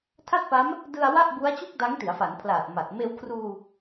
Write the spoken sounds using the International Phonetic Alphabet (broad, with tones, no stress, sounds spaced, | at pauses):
tʰ a˥˩ t̚ p a˦˥ m | d ɯ˧ a̯ w a˥˩ ʔ b u˦˥ a̯ t͡ɕ u˥˩ k̚ d a˦˥ ŋ t i˩˦ a̯ f a˩˦ n pʰ l aː˨˩ t̚ m a˨˩ t̚ m eː˧ w kʰ r uː˧